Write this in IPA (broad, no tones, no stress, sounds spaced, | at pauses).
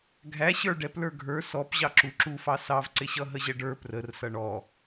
ɡʱ æ ɕ ə˞ ɖ ɛ p l ə˞ ɡʱ ə˞ s ɔ p ʑ ɑ ǁ u ǁ u f ɑ s ɑ v ǀ ɪ ɕ ʌ ɦ ə ʑ ɛ ɖ ə˞ p r ə r s ʌ ɳ ɔ